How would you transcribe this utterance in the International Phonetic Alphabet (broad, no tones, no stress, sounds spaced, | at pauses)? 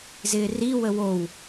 z ɪː r i w ə w o w